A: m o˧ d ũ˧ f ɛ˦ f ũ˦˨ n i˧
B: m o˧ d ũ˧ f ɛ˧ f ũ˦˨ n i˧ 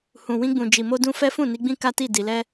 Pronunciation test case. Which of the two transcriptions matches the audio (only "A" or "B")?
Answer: A